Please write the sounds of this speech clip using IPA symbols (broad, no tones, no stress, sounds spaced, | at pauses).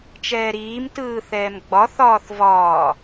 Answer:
t͡ʃ ɛː ɾ iː m t ɯː θ ɛː m ɡ͡b ɒ θ ɒː θ v ɒː